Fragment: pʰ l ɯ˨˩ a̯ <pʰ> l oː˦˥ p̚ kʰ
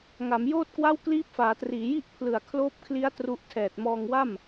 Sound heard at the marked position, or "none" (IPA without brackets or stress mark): kʰ